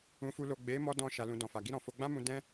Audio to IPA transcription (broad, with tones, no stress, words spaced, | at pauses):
ũ˨fu˨lo˨ ɡ͡be˨˦mɔ˧ dɔ̃˧ ʃa˨lũ˨ dɔ̃˨fa˨ ɡi˧ɾɔ̃˨fo˧ ɡ͡bã˦mũ˧ dɛ̃˦